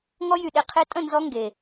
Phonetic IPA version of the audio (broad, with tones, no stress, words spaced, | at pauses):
ŋɔ˧jy˨ɗe˨ qʰe˧tʼə̃˦˨nzɔ˧ ŋɡe˨